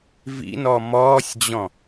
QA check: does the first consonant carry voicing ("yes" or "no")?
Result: yes